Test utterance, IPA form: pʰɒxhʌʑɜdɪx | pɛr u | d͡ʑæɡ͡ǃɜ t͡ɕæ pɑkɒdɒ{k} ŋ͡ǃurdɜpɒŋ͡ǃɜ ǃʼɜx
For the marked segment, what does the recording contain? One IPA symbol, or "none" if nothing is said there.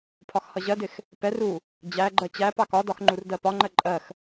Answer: x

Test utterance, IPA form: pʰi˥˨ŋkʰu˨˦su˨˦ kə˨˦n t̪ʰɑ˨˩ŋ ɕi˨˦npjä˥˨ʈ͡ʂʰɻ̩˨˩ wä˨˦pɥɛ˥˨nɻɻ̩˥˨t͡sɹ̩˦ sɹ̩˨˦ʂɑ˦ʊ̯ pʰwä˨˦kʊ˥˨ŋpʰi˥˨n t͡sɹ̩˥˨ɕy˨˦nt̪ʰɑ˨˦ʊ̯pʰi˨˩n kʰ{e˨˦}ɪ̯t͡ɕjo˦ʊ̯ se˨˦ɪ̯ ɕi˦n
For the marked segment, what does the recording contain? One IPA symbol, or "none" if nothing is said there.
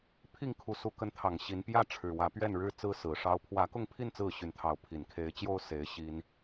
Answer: e˨˦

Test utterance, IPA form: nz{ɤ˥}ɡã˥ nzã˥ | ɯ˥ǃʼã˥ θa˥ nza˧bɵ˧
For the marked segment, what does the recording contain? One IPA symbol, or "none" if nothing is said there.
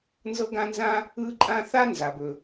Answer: ɤ˥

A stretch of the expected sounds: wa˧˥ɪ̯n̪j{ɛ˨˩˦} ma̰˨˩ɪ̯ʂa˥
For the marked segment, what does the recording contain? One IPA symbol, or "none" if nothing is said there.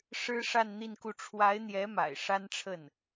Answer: ɛ˧˥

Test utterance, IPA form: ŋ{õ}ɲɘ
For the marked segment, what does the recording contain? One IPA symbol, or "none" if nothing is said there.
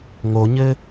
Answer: o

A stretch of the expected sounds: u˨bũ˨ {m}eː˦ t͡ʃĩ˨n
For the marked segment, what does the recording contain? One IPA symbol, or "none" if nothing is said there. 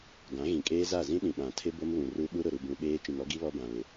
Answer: ɓ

